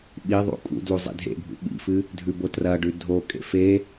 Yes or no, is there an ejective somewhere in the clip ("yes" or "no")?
yes